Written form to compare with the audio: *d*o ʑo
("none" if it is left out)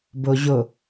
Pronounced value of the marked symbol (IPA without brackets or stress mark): b